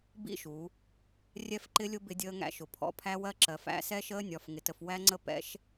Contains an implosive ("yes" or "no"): no